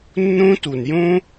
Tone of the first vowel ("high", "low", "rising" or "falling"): high